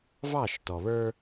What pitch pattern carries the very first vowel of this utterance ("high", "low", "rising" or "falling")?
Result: falling